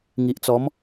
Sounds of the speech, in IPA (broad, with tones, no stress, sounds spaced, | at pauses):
ŋ i˨ ʔ t͡s ɔ˨˦ m